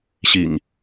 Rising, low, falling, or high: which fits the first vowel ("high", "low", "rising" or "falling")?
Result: low